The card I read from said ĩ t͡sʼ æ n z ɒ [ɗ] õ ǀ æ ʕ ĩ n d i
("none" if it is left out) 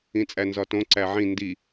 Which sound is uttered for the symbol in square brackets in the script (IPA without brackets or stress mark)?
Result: t